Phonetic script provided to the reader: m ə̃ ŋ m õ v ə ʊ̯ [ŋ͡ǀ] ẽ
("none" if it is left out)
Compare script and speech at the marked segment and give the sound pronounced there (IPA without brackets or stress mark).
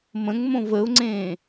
ŋ͡ǀ